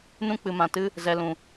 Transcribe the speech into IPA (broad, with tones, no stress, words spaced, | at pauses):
nũ˧k͡pɨ˨mã˨tɨ˧ | zɛ˨lũ˨